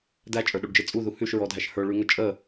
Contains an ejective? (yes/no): yes